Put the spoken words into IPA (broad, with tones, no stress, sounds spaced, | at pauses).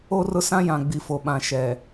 o˦ r ʊ˦ s ã˦ j ã˨ ɡ͡b i˨ f o˨ ɓ ã˨ ʃ ɛ˨